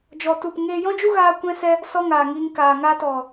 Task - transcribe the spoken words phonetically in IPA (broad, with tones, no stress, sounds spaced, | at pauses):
d͡ʒ ɔ˧ t u˦˨ p ŋ eː˧ j ɔ̃˦ d͡ʒ u˦ ɣ aː˦ kʷ ɛ̃˦ s ɛ˦ | s ɔ˦ ŋ aː˨ ŋ iː˧ ŋ k aː˨ ŋ aː˧ t ɔ˨